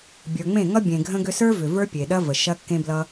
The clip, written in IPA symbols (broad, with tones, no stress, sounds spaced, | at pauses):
bʲ ə˞˨ ŋ͡m ẽ˦˨ ŋ ʌ˦ bʲ ẽ˨ ɡʱ ə̃˧ ɡ ʏ˧ s ə˞˦ v ʏ˨ v ə˞˦ pʲ e˨ ɗ ɐ˦ v ə˨ ʃ ɐ˦ kː ẽ˦ b l ʌ˦